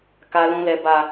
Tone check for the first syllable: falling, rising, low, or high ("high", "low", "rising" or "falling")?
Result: low